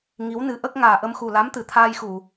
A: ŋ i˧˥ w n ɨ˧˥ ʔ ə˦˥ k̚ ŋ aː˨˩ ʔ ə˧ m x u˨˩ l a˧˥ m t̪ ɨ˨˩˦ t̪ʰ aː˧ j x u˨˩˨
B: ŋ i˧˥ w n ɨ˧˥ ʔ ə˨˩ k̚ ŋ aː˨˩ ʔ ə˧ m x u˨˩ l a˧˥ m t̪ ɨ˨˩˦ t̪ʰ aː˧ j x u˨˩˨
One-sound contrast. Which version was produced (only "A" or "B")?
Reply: A